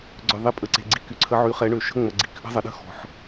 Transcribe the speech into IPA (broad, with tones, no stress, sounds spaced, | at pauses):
ɡ͡ǀ œ˩ ðˤ e˩˥ pʼ ə˩ ǀ e̤˩ ɡ͡ǀ i˩ k y˩ ǀʰ ə˩˥ ʕ y˩˥ χ ɛ˩˥ ɳ ø˩ ʃ ə̤˦ ŋ͡m ə˩ ɡ͡ǀ i˩ k ʔ ə̤˦ zˤ ə˩ ɗ ə̤˦ x ɔ̤˩ ħ